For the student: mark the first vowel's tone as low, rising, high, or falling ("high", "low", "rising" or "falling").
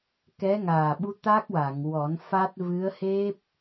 rising